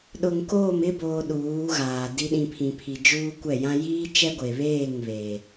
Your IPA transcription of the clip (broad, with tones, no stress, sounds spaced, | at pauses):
ɗ ʊ˨ ŋ k oː˦˨ m ɪ˦ b oː˨ ɗ uː˨˦ ɣ aː˨ d i˦ ɗ ĩ˨ pʰ ĩ˨ pʰ i˨ d͡ʒ uː˦ kʷ ɛ˦˨ j ã˦ j iː˦ t͡ʃ ɛ˦ ɡʷ e˨ β eː˦˨ ŋ β eː˨